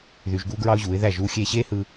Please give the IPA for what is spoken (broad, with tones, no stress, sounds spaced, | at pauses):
ð y˧ ʒ ɡ uː˦ ɡ ɹ ɑ˦ ʊ̯ ʑ uː˨˦ ɪ̯ ð æ˦˨ ʒ uː˦ xʲ eː˧ ɕ eː˦ h ɯ˧